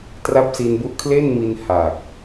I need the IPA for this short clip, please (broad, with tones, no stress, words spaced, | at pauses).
tra˦˥p̚si˧n bu˦˥ʔkʰle˥˩nmi˧n ha˨˩k̚